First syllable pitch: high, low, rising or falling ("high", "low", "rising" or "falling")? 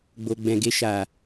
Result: low